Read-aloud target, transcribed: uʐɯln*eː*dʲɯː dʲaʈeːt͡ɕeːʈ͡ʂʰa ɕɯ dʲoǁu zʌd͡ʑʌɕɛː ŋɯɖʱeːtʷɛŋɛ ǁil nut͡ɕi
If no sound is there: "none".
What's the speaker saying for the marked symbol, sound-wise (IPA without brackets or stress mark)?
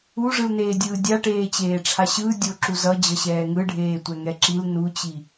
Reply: eː